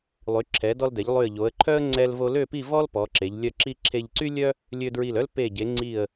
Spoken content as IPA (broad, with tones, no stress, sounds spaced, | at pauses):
lˠ y˩˧ ǁʰ ɛ˩˧ d ɔ˧ l d ɛ˩˧ ʎ lˠ y˧˩ ə̯ ʎ o˩˧ ə̯ ǃʰ œ˥ ə̯ ŋ͡ǀ ɛ˧ l v o˧ l ø˥˧ p i˥˧ v ɔ˥ l p ɔ˩˧ ǁ e˩˧ ʎ lʲ œ˧˩ ǁ i˧ ǁʰ e˧ ʎ ǀ y˥ lʲ œ˥ | lʲ ø˧ d ɹ i˧˩ l œ˥ l p e˧˩ ɟ e˩˧ ŋ͡ǀ i˧˩ ə̯